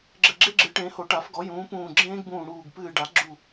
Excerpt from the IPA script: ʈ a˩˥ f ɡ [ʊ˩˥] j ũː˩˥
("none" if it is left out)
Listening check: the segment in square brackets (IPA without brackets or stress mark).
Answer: ɔ˩˥